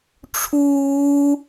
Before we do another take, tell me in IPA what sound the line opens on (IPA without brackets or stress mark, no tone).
ʈ͡ʂʰ